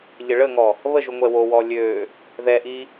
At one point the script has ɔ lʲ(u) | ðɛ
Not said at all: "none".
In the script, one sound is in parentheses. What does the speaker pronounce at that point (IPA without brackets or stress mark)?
ø